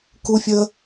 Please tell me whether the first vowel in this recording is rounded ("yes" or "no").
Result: yes